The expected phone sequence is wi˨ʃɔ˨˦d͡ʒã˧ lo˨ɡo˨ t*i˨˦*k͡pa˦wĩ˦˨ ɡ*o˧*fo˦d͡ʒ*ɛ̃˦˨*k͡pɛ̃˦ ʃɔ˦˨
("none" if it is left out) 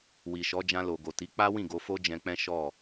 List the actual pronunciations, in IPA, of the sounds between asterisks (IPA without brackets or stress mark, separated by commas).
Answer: i˨˦, o˧, ɛ̃˧